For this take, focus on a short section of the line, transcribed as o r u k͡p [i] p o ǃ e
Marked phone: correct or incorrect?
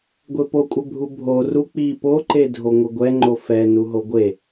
correct